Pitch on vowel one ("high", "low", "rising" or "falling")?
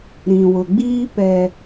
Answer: low